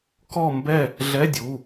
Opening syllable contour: falling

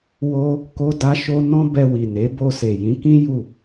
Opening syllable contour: high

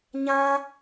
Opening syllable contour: high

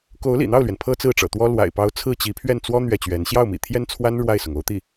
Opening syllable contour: rising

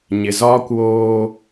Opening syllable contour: low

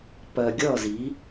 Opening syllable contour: low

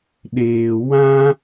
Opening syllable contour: low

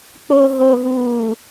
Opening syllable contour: low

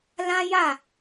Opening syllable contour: high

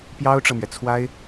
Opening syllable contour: high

